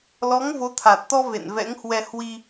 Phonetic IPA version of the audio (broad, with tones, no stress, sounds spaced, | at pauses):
l ɔ˨˦ ŋ v o˨˦ t̪ʰ a˨˩ t̚ t̪ ɔ˧ v ḛ˧˨ n v ɛ̰˧˥ ŋ h w ɛ˧ h w i˧